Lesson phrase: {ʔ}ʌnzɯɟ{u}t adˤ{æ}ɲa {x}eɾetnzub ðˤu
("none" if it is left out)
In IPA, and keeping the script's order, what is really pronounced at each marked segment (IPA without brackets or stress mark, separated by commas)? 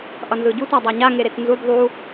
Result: ʔ, u, a, ŋ